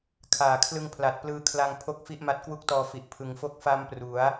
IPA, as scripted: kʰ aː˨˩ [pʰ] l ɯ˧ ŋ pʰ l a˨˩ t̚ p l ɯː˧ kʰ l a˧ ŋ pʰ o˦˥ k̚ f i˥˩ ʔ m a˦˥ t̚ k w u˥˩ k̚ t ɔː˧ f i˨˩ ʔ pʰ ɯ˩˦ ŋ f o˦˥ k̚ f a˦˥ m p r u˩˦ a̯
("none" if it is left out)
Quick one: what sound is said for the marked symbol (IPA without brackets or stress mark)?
kʰ